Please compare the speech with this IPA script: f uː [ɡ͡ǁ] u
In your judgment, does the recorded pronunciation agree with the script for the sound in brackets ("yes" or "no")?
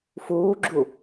yes